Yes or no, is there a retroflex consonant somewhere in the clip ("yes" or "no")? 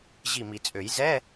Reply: no